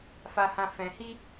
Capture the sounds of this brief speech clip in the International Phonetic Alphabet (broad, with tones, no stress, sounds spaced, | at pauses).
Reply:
f a˧ h ã˧ f ɛ̃˧ h i˦